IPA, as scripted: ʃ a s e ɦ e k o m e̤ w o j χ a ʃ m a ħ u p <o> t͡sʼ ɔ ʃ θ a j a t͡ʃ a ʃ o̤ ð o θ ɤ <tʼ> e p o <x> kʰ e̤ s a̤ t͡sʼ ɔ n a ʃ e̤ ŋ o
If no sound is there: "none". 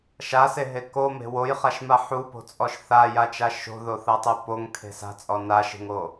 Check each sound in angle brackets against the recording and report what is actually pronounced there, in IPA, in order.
o̤, tˤ, ŋ

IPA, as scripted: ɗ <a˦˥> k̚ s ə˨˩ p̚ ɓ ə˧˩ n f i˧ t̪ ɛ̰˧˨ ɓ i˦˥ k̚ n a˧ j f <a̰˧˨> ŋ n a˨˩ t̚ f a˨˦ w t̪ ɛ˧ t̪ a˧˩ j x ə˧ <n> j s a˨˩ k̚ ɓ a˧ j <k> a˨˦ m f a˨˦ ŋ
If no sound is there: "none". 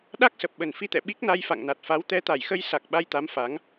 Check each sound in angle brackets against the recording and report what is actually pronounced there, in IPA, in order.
a˦˥, a̰˧˨, none, t̪

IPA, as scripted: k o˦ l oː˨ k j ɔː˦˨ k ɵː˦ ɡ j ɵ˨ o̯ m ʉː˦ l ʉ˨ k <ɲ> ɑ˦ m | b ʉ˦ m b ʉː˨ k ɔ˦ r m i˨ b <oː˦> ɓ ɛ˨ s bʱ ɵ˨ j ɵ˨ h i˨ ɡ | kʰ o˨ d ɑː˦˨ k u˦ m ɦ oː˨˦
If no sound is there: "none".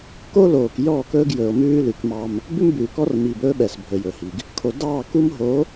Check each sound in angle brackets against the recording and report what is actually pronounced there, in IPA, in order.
m, ɵː˦

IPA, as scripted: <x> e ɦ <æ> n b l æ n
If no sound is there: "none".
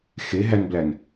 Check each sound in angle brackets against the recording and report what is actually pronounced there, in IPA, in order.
x, æ

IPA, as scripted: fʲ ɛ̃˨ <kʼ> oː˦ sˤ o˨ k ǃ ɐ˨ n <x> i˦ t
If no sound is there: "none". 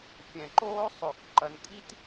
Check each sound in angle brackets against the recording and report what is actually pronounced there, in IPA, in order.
ǃ, kʼ

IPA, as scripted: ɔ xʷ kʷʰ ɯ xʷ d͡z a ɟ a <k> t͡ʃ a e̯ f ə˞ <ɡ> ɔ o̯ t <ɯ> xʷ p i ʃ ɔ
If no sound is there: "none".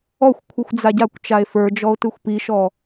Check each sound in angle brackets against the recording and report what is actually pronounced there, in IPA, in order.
kʷ, d͡ʒ, ɯ

